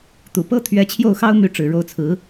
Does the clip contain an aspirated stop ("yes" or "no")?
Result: yes